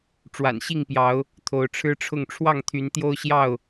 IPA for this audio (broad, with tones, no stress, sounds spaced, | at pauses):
ʈ͡ʂ w a̰˨˩ n ɕ i˥˨ ŋ p j ɑ˨˦ ʊ̯ | t̪ʰ o˨˦ ʊ̯ ʈ͡ʂʰ ɻ̩˦ ʈ͡ʂʰ ʊ˥˨ ŋ ʈ͡ʂʰ w ɑ˥˨ ŋ t̪ʰ y˨˦ n t̪ j o˦ ʊ̯ ɕ j ɑ˥˨ ʊ̯